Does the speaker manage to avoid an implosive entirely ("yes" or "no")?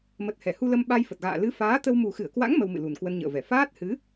no